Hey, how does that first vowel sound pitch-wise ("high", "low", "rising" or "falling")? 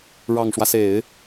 low